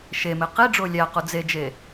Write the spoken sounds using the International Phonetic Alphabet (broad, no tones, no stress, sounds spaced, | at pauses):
ʃ e m e q i ɖ͡ʐ o lʲ æ q u d͡z e d͡ʒ e